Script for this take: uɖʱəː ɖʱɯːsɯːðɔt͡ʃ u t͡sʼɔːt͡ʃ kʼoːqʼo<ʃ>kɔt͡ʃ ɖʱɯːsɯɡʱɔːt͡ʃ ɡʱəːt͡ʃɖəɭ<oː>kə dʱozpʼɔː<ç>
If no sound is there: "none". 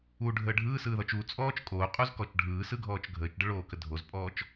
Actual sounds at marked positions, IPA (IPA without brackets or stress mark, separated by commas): z, oː, t͡ʃ